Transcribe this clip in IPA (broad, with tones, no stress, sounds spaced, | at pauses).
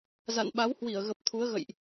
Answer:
z a̰˧˨ n ɓ a˨˦ w h w i˧˩ ə̯ ɣ ə˨˩ p̚ t̪ʰ u˨˦ ə̯ ɣ ə̰˧˨ j ʔ